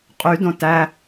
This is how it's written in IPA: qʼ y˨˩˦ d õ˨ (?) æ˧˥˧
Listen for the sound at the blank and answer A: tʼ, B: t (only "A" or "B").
B